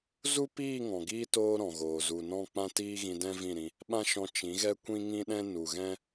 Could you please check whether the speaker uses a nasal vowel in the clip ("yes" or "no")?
yes